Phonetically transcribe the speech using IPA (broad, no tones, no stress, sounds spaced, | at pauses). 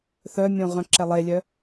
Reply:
θ œ mʲ õ ʁ œ̃ ǁ ɛ lˠ e lʲ œ